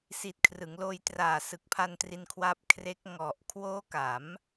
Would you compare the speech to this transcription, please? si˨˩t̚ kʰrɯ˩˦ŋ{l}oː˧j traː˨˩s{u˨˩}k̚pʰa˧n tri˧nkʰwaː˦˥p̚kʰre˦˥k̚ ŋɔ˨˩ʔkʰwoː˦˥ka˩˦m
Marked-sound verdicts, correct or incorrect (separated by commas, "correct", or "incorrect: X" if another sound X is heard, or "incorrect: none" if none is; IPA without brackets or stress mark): correct, incorrect: ɯ˨˩